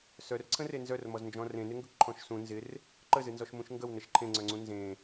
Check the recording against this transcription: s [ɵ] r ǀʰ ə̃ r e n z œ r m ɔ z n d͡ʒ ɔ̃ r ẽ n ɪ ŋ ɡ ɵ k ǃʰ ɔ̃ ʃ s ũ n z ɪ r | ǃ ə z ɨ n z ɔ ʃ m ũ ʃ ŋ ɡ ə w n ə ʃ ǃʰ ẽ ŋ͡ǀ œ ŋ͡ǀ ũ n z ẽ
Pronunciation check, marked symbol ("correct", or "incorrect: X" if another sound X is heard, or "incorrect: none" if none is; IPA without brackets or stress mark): incorrect: œ